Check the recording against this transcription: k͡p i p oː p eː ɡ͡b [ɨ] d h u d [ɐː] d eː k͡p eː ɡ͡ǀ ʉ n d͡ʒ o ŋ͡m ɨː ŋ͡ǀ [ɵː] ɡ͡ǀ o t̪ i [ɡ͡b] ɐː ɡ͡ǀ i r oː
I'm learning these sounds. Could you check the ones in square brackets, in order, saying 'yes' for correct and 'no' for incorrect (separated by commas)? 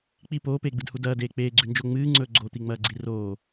yes, yes, yes, no